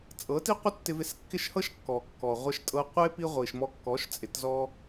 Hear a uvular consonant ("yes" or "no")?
yes